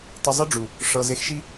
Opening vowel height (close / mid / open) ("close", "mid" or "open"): close